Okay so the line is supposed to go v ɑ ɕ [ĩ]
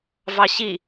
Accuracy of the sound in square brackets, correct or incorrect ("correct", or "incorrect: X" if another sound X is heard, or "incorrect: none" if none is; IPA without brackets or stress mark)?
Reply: incorrect: i